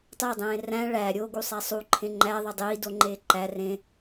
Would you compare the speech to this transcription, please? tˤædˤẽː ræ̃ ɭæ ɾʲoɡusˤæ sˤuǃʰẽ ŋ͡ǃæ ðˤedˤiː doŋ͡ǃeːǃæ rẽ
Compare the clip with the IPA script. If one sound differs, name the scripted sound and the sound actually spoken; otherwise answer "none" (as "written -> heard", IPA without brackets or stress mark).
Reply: none